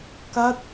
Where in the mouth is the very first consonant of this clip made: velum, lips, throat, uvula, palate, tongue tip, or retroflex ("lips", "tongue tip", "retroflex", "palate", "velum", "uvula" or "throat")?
velum